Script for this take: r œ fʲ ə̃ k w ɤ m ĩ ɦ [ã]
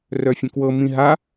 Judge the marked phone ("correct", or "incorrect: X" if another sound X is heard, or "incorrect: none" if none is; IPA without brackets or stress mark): incorrect: a